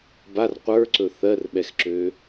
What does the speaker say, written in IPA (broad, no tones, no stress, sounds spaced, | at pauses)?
b a r qʷ ə˞ ǀ ɵ θ ɜ r ɓ ɛ x ǁ ø